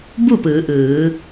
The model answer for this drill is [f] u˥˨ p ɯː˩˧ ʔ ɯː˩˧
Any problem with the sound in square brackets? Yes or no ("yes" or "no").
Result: yes